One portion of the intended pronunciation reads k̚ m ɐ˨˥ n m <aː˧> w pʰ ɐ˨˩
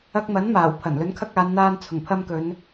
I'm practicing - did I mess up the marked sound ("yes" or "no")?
yes